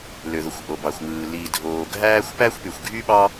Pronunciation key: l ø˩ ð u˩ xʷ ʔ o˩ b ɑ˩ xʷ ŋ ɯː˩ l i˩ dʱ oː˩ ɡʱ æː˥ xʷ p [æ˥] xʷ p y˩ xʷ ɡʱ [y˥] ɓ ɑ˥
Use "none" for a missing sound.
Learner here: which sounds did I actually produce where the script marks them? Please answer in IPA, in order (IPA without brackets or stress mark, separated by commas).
æ˥, y˥